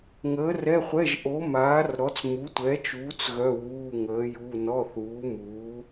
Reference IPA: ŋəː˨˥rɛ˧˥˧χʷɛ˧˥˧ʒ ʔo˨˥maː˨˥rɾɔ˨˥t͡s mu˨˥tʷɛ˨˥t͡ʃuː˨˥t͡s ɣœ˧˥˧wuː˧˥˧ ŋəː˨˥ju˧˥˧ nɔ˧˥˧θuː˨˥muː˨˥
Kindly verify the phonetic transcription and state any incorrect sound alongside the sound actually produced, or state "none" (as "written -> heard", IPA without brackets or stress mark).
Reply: none